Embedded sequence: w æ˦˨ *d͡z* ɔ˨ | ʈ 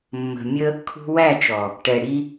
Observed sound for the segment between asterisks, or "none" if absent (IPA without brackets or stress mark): t͡ʃ